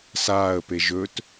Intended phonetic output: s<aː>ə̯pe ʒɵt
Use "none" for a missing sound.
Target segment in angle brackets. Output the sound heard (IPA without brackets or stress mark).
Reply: aː